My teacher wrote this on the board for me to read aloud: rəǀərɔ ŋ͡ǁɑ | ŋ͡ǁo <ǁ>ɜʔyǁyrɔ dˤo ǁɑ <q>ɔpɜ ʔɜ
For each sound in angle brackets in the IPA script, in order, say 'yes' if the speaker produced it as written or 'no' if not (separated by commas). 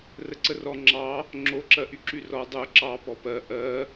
yes, no